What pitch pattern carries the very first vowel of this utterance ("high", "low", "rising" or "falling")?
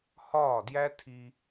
falling